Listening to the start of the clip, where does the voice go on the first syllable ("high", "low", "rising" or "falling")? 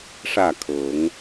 falling